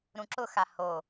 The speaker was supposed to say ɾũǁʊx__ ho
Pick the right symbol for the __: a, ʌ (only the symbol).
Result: a